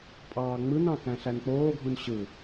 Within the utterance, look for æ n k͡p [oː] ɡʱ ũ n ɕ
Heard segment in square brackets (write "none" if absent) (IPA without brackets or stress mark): oː